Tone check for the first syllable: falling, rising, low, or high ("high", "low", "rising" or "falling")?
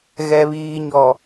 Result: low